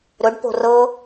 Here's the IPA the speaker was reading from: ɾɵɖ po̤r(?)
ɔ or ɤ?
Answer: ɤ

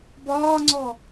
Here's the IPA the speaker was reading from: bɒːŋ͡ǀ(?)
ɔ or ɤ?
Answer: ɔ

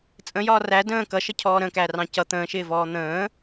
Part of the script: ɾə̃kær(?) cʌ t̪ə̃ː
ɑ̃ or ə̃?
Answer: ɑ̃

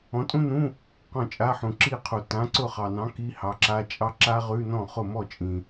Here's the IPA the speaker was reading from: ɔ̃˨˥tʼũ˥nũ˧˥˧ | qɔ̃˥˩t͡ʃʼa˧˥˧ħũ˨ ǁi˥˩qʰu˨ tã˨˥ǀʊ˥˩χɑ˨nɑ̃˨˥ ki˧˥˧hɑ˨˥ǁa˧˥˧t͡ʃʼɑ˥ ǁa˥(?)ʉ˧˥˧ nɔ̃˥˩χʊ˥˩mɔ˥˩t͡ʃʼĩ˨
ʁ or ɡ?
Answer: ʁ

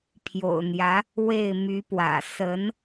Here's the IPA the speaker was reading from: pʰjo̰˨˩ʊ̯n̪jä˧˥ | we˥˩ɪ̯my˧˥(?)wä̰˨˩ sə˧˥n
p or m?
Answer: p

